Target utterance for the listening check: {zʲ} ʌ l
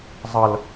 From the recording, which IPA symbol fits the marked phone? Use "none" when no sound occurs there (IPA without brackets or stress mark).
zˤ